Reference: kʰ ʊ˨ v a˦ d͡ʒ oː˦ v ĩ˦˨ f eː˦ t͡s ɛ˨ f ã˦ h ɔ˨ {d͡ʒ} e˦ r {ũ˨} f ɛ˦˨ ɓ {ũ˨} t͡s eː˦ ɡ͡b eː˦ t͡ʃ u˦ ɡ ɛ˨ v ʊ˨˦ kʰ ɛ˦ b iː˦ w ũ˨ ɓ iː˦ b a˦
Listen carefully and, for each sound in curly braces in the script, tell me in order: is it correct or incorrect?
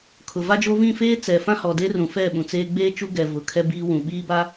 incorrect, correct, correct

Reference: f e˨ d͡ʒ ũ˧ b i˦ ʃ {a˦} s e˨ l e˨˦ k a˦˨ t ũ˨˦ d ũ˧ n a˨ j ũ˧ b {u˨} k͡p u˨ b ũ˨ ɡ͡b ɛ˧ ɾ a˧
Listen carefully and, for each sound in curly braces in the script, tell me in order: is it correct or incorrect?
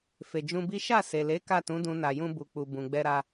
incorrect, correct

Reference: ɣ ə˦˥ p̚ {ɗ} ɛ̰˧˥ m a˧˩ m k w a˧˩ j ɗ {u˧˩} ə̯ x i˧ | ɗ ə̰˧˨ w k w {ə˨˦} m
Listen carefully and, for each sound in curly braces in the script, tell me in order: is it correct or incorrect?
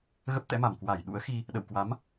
incorrect, incorrect, incorrect

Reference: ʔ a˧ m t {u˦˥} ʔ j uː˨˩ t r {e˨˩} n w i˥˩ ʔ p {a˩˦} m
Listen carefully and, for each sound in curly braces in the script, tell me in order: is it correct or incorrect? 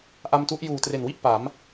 correct, correct, correct

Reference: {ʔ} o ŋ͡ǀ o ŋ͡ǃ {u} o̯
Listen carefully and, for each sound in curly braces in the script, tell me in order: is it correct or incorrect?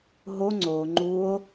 incorrect, correct

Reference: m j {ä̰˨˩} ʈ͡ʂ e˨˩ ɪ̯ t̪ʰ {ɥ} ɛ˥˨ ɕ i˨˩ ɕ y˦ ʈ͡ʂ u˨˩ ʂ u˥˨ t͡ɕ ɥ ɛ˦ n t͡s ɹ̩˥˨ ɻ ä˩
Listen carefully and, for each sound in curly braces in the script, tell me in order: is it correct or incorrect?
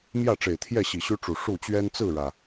incorrect, incorrect

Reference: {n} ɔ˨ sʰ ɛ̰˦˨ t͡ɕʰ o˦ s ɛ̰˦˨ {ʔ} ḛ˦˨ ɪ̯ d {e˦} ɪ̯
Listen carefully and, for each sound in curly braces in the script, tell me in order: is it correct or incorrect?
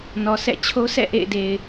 correct, correct, incorrect

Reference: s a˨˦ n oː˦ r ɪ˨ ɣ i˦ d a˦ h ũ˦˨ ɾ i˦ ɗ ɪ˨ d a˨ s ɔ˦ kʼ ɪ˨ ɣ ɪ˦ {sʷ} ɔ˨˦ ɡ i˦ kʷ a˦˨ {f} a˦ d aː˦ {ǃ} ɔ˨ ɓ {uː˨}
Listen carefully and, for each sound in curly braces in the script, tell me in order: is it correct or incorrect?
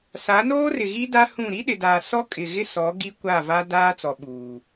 incorrect, incorrect, incorrect, correct

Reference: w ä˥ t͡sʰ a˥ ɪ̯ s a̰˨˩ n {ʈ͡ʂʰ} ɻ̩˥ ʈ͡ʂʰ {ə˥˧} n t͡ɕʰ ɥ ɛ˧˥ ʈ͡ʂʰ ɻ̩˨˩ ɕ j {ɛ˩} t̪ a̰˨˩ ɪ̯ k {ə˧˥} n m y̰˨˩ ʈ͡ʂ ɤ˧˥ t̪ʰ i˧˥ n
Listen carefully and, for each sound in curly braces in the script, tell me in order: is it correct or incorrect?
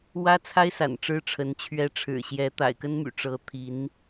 incorrect, incorrect, incorrect, incorrect

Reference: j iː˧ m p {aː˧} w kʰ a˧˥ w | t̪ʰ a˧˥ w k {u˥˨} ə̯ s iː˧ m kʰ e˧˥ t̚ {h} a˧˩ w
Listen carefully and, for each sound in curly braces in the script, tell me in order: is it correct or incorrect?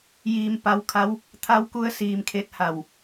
incorrect, incorrect, correct

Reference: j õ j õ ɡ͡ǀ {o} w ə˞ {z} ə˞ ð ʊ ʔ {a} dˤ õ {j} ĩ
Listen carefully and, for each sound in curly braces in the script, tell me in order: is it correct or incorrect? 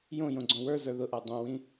incorrect, correct, correct, incorrect

